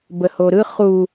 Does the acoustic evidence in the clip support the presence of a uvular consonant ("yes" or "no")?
yes